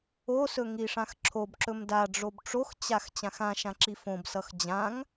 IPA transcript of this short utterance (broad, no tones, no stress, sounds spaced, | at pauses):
o s ɵ ŋ i ʂ ã x ǁʰ o b ǁ ɵ m d a ɖ͡ʐ o b ʈ͡ʂ o x t͡ɕ a x t͡ɕ ã x ã ʃ ã ǁ i f õ b s ʌ x d͡ʑ ã ŋ